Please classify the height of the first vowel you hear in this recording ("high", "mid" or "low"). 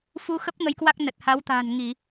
high